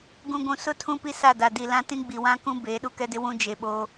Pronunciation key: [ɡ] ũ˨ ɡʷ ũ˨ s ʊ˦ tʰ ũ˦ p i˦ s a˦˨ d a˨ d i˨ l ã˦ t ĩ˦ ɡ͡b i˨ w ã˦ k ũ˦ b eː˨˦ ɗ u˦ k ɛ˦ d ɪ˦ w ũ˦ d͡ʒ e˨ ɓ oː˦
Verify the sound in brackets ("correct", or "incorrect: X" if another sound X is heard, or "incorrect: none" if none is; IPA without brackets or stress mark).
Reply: correct